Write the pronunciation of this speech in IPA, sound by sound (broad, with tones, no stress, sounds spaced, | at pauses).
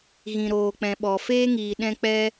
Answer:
ɣ ĩ˨ ɾ oː˨ k͡p ɛ̃˨ ɓ ɔ˨ f eː˦ ŋ iː˨ ɗ ɛ̃˧ k͡p ɛ˧